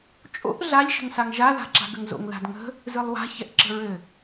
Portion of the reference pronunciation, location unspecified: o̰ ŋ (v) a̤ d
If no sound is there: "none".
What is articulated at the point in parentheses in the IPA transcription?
ð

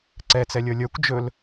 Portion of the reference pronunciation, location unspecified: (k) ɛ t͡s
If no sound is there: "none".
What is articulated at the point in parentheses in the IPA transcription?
ǀ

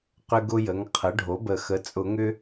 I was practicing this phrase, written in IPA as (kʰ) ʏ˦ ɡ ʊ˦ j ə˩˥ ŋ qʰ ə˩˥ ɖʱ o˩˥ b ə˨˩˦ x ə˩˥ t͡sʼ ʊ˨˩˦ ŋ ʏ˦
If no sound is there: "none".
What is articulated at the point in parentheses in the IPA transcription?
q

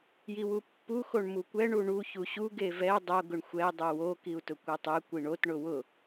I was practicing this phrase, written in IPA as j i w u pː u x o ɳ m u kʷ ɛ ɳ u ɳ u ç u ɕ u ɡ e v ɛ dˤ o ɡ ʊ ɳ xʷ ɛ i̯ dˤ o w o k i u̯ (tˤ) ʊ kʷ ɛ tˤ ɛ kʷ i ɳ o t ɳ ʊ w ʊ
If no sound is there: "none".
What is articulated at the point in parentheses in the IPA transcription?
t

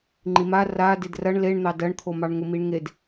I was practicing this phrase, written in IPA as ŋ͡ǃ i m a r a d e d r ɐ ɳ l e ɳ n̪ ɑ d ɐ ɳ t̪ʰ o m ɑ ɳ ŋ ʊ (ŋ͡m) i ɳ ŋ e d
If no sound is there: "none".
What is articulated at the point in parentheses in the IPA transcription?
m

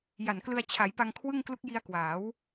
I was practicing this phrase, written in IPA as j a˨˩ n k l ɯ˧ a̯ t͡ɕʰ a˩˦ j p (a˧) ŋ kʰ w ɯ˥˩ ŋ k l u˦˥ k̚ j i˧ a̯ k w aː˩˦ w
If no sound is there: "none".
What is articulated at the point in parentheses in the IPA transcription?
a˧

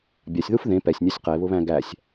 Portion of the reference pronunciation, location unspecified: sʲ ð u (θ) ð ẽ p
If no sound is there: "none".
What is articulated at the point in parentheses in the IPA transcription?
f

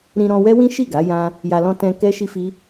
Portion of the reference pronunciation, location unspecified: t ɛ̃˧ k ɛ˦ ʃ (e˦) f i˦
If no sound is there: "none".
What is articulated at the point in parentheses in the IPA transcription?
i˦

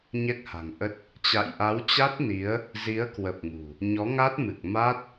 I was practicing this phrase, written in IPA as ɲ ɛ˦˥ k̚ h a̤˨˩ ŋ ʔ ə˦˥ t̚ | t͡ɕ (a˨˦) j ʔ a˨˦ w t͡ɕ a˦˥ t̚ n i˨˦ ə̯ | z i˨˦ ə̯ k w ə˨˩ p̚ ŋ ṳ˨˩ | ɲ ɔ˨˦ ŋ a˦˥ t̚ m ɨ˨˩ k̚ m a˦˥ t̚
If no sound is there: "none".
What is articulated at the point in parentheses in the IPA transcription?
a̰˧˨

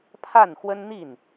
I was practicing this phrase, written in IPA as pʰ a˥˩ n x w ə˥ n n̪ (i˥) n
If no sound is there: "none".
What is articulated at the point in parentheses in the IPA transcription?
i˥˩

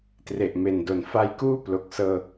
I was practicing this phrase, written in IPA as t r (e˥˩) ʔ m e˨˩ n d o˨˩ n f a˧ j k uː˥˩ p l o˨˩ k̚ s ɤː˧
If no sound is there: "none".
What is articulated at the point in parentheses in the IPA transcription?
e˨˩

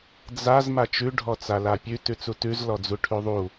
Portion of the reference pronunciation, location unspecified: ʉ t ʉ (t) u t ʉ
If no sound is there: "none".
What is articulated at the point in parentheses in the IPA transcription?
t͡s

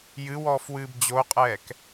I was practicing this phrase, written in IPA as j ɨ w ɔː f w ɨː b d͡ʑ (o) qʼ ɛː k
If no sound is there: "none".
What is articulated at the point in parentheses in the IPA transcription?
o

